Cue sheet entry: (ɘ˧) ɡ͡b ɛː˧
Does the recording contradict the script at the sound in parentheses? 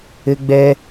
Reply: no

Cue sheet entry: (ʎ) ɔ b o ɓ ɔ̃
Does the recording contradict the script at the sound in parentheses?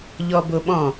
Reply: no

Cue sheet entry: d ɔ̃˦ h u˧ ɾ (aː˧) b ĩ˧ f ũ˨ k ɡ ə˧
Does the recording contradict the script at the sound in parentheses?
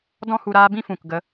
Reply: no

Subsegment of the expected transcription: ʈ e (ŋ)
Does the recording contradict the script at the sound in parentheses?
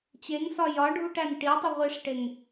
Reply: no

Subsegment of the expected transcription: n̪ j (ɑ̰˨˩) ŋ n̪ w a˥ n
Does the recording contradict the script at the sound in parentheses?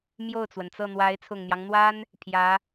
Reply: yes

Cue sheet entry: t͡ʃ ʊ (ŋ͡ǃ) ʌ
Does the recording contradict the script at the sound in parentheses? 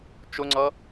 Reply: yes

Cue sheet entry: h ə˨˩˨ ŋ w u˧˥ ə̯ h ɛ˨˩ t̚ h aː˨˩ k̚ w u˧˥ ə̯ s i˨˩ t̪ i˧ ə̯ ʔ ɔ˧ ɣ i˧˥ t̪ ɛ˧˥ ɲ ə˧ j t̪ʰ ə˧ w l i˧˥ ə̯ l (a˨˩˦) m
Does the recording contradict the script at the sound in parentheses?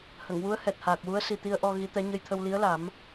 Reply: no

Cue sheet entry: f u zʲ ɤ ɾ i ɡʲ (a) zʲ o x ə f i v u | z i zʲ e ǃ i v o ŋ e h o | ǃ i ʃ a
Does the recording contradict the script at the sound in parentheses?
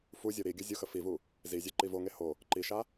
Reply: yes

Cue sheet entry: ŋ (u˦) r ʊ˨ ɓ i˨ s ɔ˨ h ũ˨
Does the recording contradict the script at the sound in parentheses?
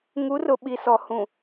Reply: yes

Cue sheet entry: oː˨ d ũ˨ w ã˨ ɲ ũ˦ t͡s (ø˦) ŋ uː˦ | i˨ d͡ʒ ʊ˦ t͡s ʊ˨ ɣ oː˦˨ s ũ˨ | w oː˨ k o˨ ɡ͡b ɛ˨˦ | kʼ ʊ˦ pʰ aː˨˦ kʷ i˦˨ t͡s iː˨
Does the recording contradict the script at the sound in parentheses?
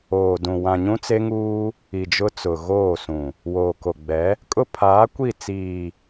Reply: yes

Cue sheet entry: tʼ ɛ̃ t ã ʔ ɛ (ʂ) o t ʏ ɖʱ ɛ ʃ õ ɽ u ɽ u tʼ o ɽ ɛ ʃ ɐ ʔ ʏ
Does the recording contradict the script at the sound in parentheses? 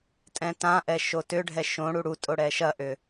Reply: yes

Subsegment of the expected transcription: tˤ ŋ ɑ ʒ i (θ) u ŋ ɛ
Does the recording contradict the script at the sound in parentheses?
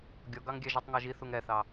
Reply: no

